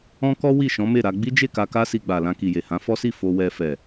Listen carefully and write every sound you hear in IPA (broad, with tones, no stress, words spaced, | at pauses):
ɔ̃˦kɔ˦ wi˦˨ʃɔ̃˨˦me˦˨ɾa˧ ɡ͡bi˦d͡ʒe˦˨ka˧ ka˦ si˧ɡ͡ba˨ lã˧ki˨je˨hã˨˦ fɔ˦si˦˨ fo˧ wɛ˧fɛ˨